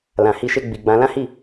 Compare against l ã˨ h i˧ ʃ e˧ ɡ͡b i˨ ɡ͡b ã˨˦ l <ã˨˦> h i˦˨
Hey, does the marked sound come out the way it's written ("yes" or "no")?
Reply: no